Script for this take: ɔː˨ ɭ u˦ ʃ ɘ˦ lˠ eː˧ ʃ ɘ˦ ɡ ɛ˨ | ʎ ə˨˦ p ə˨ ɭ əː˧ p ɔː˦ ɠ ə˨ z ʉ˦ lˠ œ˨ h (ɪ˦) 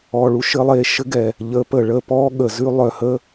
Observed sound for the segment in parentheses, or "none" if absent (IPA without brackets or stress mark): ə˦